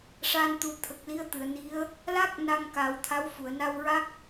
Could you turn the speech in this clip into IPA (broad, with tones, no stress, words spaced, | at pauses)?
ʂa˧n t̪u˨˩˦t̪ʰə˨˩k̚li˧˥ə̯t̪ɨ˨˩˨ə̯ ni˧˥ə̯ | la˦˥k̚ na˧ŋka˨˩˦wt̪ʰa˧˥w fu˨˩˨ə̯na˧wɹa˦˥k̚